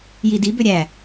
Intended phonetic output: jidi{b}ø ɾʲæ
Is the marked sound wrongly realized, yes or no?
no